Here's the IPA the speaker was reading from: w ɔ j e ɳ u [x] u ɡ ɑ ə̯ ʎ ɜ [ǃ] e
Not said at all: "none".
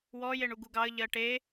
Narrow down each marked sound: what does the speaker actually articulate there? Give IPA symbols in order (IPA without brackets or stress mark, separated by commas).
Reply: ɡ, ʈ